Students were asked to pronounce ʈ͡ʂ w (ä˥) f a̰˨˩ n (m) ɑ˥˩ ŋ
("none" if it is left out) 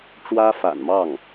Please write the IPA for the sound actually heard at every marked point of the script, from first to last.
ä˥, m

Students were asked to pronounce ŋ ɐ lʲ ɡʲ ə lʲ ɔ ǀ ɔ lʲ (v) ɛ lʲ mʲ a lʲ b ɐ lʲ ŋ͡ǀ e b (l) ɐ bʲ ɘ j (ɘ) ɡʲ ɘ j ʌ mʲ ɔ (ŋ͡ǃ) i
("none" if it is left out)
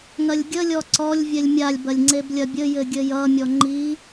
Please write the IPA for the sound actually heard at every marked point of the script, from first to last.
vʲ, lʲ, ɘ, ŋ͡ǃ

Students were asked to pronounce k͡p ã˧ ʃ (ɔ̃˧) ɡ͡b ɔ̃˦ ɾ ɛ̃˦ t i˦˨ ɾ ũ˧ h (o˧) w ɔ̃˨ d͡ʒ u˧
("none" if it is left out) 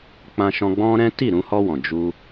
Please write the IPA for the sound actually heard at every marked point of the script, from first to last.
ɔ̃˧, ɔ˧

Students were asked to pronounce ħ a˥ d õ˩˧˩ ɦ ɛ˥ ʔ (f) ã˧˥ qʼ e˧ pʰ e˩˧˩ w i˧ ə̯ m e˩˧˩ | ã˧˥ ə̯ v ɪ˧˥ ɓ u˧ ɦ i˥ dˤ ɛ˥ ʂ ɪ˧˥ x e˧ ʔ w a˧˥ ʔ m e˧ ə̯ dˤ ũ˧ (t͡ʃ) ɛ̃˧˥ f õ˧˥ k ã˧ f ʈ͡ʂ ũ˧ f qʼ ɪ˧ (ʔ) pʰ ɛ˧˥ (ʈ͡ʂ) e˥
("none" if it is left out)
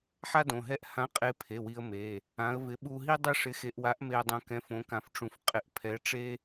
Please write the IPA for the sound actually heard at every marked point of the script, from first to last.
h, k, ʔ, ʈ͡ʂ

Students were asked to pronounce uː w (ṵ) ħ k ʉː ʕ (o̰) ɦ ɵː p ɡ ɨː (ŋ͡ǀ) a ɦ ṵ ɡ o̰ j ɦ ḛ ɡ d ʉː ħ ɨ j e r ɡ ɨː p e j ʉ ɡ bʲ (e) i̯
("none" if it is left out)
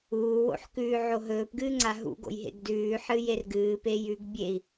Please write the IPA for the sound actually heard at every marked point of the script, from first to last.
o̰, o, ŋ͡ǀ, e

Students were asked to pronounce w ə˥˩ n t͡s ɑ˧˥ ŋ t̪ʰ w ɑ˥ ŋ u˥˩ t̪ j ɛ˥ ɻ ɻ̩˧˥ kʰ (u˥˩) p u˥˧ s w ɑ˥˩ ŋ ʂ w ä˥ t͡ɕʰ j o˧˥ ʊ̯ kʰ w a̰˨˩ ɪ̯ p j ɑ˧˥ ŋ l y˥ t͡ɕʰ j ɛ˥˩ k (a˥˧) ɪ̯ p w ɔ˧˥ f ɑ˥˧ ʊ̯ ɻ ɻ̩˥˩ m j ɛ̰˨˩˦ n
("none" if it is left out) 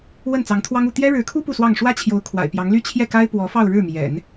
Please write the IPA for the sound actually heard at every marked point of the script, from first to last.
u˥, a˥

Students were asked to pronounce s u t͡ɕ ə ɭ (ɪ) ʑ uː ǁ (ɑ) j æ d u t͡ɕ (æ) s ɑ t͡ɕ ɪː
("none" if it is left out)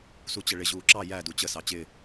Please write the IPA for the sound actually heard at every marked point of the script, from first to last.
ɪ, ɑ, ə

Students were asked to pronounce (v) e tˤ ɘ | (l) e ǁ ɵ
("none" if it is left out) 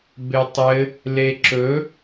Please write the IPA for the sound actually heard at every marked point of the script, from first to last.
b, l

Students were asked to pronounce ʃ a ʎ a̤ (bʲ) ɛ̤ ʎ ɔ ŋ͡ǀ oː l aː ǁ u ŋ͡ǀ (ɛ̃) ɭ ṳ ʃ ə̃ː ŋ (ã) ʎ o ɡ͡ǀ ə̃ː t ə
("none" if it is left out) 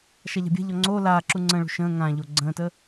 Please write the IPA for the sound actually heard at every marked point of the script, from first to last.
bʲ, ə̃, ã

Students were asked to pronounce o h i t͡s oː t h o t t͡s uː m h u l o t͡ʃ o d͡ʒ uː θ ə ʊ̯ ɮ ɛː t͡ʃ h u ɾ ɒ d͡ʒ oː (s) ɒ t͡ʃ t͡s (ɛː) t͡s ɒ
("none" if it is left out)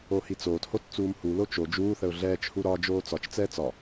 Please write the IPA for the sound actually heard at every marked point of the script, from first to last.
t͡s, ɛː

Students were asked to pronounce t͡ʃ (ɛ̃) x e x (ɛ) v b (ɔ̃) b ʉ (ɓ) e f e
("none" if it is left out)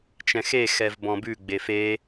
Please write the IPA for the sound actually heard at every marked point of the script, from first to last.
ɛ̃, ɛ, ɔ̃, ɡ͡b

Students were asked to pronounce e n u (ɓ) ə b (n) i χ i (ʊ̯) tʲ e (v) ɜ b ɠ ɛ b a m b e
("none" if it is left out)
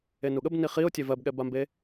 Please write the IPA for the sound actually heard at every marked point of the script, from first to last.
ɠ, n, ʊ̯, v

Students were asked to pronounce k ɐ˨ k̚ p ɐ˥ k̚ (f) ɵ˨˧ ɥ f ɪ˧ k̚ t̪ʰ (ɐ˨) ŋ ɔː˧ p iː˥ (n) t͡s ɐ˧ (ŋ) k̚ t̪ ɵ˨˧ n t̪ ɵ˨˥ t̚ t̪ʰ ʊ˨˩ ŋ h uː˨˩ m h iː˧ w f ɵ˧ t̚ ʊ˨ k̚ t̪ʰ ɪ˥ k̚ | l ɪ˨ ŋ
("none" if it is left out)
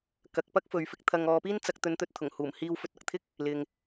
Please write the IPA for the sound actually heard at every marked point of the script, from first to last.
f, ɐ˧, n, none

